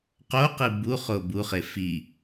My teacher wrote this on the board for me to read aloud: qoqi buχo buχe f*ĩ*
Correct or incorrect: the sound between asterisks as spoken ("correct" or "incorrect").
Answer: incorrect